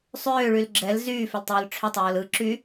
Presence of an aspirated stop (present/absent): present